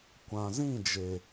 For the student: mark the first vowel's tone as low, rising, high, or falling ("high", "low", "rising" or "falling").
low